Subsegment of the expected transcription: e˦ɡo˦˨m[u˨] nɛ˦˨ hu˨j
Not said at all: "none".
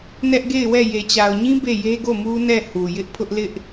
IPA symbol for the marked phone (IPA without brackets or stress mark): u˦